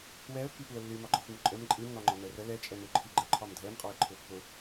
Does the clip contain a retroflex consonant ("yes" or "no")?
no